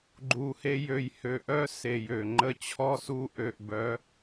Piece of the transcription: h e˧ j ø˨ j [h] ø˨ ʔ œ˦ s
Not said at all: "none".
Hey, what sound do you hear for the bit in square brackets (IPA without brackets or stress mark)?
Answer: h